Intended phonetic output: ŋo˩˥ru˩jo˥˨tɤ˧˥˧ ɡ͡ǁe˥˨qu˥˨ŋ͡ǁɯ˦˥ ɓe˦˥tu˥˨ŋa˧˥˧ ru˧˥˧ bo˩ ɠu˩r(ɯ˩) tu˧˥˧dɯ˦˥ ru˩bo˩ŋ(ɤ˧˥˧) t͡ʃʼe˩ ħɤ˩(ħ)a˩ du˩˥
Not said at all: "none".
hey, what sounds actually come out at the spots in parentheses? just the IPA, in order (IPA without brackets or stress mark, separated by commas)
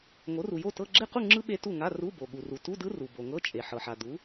u˩, ɤ˧˥˧, ħ